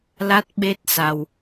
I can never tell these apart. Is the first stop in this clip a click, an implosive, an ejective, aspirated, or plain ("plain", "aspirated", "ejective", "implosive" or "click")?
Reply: plain